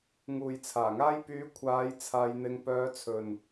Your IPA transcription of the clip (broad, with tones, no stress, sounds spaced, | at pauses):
ŋ uː˨ j t͡sʰ aː˨˩ ŋ aː˥ j p yː˨˥ kʷʰ aː˨˧ j t͡sʰ aː˧ j n̪ ɪ˧ ŋ p œː˧ t͡sʰ ɵ˨ n